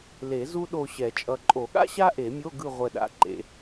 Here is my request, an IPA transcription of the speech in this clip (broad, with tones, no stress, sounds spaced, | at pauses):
l e˨˩˦ z u˥ ɗ o˦˨ ɕ ɛ˨˩˦ t͡ʃʼ ʌ˨ ǃʼ o˨˩˦ ɠ a̰˥ ɕ a˥ ʔ e˨˩˦ mʲ o˧˥˧ ɡ ɯ˦˨ ʁʷ ɛ˦˨ ɗ a̰˨˦ ǃ ḛ˨˩˦